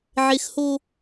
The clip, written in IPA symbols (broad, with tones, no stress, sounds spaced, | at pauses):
ʕ e˦ x h o˦